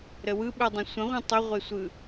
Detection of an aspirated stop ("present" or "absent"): absent